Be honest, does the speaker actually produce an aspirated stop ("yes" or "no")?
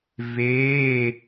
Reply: no